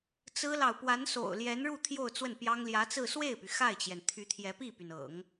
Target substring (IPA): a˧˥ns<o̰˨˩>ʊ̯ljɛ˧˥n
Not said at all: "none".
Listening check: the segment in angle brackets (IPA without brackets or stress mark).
o̰˨˩